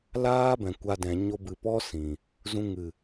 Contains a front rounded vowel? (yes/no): no